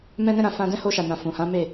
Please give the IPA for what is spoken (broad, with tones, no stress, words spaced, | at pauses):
mɛ̃˧nɛ̃˧ɾã˨ fã˧dɛ̃˦ho˧ ʃa˨nã˨ fũ˨hã˨˦me˦˨